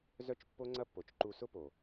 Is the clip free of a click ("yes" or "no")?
no